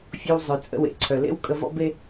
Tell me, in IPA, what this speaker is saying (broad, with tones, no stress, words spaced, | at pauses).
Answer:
fʲo˧w zˤœ˩ t͡sʼə̰˧wḛ˩ǀʰœ˩ lḛ˥wkʼə˧vɔ̰˥ be˥